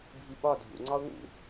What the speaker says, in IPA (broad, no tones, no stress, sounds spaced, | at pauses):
bʱ i ɓ ɒ dʱ ṵ ŋ͡ǀ ɒ ʊ̯ ŋ ṵ